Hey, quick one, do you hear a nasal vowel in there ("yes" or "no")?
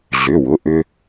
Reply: no